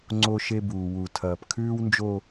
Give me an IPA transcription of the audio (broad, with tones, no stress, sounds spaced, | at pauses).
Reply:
ŋ͡ǀ o˦ ʃ e˦ b uː˨ w u˨ tʰ ɐː˨ p kʰ ʉː˦ w n d͡ʒ o˦